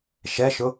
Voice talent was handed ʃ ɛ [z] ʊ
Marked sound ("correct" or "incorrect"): incorrect